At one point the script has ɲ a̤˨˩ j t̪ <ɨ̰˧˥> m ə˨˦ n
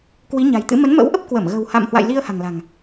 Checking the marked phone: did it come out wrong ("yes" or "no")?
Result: no